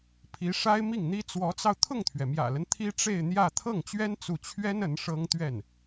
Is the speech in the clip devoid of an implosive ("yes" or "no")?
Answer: yes